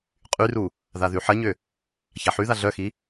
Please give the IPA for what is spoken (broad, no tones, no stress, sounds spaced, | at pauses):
qʼ y r u | ð a ð y ħ ɐ ɲ ʏ | ç a ħ y ð a ɮ œ x i